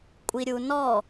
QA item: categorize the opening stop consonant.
ejective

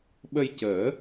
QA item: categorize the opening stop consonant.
implosive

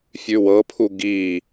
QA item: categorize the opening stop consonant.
aspirated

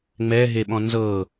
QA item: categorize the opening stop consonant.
implosive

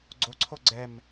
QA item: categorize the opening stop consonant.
click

